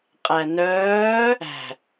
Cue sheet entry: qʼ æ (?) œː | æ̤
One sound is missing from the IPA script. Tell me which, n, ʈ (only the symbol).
n